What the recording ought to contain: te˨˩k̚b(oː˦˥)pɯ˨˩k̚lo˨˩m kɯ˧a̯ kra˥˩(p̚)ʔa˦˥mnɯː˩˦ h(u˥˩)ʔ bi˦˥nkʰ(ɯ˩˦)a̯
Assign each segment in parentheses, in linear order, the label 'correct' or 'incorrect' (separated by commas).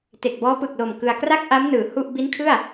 incorrect, incorrect, correct, incorrect